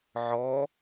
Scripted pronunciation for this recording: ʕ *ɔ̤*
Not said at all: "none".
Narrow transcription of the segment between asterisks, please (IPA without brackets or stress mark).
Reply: ɔ